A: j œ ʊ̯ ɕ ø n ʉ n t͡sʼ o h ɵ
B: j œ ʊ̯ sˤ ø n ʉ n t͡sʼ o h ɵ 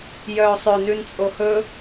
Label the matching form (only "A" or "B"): B